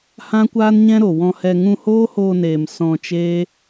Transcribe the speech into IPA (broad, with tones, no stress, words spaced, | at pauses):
hã˦kʷaː˦nɲɛ̃˦ ɾo˨ wɔ̃˧hɛ˧ ŋũ˧hoː˦hoː˧neː˨m sɔ̃˧t͡ʃeː˦